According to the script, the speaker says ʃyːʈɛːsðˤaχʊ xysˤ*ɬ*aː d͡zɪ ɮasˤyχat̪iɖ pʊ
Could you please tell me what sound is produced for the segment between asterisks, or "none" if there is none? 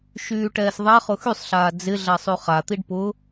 ɬ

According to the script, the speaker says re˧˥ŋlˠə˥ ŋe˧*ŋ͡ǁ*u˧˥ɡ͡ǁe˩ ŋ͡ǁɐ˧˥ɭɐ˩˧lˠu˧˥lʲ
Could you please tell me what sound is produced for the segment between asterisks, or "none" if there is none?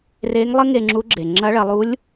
ŋ͡ǁ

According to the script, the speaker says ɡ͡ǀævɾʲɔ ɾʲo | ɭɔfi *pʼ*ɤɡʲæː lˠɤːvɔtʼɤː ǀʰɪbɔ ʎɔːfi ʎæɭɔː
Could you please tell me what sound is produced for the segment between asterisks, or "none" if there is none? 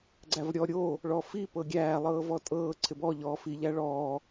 p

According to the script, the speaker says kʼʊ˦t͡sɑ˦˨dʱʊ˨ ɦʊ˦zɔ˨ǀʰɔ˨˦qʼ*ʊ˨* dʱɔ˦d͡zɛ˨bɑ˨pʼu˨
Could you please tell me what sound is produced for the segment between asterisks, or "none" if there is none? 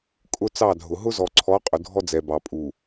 ʊ˨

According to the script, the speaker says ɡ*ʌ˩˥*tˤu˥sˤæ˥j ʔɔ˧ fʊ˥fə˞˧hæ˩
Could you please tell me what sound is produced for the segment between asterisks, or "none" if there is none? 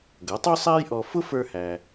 ʌ˩˥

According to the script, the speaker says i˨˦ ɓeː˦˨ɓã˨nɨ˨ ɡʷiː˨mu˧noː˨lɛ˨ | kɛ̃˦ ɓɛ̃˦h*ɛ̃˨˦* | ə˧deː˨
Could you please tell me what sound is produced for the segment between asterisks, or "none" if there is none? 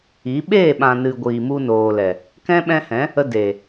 ɛ̃˨˦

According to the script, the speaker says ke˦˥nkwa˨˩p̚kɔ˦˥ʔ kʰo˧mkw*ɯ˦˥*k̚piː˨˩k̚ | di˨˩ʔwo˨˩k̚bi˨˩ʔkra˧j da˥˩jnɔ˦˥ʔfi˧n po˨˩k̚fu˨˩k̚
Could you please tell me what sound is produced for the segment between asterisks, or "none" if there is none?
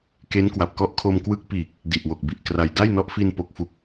ɯ˦˥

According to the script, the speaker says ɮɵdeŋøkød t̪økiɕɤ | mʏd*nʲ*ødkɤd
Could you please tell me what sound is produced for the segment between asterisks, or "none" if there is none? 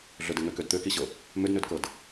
n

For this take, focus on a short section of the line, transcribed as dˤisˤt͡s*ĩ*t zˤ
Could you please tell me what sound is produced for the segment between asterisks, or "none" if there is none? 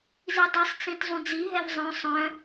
ĩ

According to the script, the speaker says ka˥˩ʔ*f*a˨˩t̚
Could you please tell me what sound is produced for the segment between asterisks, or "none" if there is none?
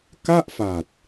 f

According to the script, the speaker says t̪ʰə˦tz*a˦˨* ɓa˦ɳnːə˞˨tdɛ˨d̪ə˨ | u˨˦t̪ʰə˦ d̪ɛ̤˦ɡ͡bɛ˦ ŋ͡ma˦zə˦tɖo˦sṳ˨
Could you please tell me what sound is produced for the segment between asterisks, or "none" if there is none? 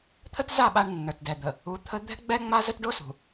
a˦˨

